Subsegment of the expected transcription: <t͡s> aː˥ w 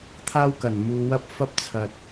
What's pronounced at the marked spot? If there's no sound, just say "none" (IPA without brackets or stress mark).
t̪ʰ